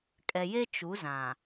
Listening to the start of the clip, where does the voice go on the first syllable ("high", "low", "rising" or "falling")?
low